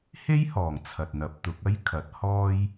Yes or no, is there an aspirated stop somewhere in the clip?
yes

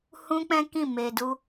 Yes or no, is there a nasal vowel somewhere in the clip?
yes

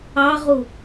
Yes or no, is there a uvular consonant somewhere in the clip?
yes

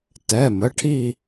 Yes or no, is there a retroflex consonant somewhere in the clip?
yes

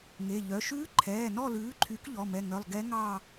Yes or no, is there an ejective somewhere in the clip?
no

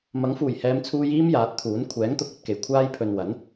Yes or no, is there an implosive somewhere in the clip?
no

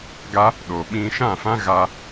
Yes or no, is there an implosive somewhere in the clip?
yes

